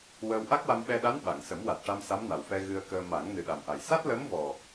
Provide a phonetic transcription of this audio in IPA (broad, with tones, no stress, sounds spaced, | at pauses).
w əː˧ w ʔ a˦˥ k̚ w a˧ m ɓ ɛ˧ ɗ a˧˥ n ɓ a˨˩˨ ŋ s ə˨˩˦ m w a˨˩ t̚ ʈ a˧ m s a˧˥ m n a˨˩ w f ɛ˧ ɣ ɨ˧ ə̯ k əː˧ m a˨˩˦ ŋ n ɨ˨˩ ɗ a˨˩ m ʔ a˨˩ j s a˦˥ t̚ l əː˧˥ m v ɔ˨˩